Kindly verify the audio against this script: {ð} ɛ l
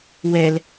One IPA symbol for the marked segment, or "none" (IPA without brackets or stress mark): w